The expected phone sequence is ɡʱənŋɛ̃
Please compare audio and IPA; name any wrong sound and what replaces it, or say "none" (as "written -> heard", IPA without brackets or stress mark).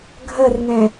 n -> r